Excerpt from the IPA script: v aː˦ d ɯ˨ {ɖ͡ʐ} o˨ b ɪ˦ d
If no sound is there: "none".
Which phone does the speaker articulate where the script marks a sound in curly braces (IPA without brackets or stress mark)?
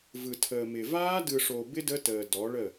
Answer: ʂ